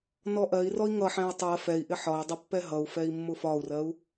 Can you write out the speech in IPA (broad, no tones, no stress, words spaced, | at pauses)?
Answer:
nɔʔɜi̯rɔi̯ ŋʌħɛ̃i̯ tˤɜ fɛi̯ʔɪ ħɒi̯dˤʌ pːɛɦʌu̯fɛi̯ mːʊfɒu̯rɜu̯